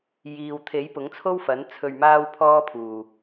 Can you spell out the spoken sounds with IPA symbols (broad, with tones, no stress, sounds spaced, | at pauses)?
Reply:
j iː˨ w t̪ʰ e˨˥ j p ʊ˨˥ ŋ t͡sʰ o˥ w f ɐ˨˥ n t͡sʰ ɵ˧ ɥ m aː˥ w pʰ ɔː˥ pʰ uː˨˩